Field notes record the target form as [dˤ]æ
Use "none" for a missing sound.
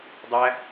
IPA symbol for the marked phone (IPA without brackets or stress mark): dˤ